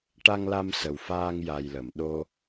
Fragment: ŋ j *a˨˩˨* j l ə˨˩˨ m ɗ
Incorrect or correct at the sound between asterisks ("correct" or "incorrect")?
incorrect